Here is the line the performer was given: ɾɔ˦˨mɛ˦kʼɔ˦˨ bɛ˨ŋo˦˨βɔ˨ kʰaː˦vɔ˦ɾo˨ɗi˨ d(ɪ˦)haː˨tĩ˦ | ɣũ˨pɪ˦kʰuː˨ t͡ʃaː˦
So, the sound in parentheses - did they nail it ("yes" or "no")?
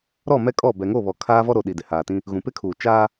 no